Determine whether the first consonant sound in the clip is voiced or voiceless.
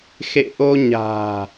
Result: voiceless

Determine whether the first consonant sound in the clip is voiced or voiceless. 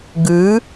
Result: voiced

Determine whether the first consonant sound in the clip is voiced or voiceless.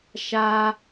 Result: voiceless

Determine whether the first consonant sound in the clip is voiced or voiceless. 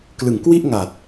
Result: voiceless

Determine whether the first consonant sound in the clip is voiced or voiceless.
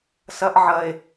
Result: voiceless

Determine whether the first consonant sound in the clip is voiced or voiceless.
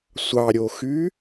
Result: voiceless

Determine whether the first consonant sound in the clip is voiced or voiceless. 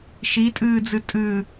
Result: voiceless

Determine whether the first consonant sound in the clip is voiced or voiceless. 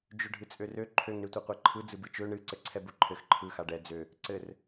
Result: voiced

